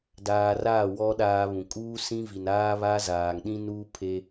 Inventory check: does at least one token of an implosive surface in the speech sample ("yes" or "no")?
yes